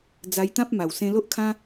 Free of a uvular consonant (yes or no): yes